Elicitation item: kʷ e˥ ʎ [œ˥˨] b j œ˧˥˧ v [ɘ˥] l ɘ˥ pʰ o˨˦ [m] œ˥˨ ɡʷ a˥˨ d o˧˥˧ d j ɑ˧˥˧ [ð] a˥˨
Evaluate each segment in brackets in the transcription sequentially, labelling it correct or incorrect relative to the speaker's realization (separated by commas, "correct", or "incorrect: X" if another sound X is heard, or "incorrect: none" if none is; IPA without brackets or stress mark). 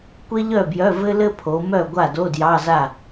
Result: correct, correct, correct, incorrect: z